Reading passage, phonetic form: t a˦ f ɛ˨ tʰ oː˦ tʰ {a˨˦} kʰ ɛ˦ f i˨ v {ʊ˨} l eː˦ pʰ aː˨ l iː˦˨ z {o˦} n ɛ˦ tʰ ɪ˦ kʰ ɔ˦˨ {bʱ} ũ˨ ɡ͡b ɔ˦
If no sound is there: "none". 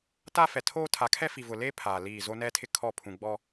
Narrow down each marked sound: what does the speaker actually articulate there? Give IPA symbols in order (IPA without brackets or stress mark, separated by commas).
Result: a˨˦, ʊ˨, o˦, pʰ